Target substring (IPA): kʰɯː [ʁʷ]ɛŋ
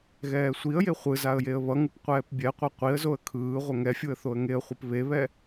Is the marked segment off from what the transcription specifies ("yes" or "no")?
no